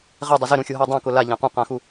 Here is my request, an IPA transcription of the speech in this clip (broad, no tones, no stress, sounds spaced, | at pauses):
ʁ e dˤ ɪ z ɪ ɾ ũ xʲ o ɦ ɛ dˤ ɛ̃ k ʊ l a ʎ ã q ũ q ã x u